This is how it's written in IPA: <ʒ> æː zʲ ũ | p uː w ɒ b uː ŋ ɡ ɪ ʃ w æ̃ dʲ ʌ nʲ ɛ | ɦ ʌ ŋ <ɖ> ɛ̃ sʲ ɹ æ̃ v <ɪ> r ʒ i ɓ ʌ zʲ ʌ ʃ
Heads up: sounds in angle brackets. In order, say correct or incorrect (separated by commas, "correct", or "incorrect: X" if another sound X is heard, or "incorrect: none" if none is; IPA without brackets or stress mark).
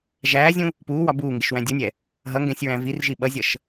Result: correct, incorrect: ɡ, incorrect: i